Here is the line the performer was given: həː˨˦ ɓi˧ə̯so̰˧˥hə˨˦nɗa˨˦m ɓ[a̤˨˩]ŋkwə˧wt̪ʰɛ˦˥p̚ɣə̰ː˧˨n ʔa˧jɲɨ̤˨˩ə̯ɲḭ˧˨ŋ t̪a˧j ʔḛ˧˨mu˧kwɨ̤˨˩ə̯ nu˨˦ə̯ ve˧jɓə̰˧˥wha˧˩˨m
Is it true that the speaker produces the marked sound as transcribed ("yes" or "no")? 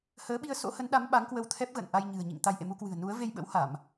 no